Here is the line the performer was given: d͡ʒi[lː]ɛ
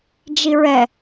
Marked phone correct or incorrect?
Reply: incorrect